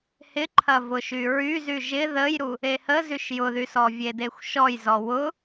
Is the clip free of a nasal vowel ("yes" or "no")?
yes